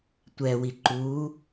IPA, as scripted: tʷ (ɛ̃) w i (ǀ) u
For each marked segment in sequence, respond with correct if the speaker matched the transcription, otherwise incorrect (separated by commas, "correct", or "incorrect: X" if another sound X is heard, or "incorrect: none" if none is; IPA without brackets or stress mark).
incorrect: ɛ, incorrect: ǃ